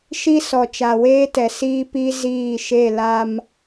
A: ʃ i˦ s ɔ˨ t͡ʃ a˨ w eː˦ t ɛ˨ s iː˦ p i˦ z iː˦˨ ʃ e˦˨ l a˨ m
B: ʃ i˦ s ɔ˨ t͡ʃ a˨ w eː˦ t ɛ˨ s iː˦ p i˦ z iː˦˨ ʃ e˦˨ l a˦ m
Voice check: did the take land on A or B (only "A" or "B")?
B